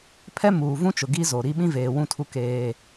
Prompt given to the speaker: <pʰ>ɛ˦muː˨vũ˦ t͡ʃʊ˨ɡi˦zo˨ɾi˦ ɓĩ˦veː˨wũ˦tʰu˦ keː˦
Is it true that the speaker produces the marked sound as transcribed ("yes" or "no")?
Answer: yes